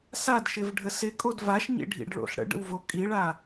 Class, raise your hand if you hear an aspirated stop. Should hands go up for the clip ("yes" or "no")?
no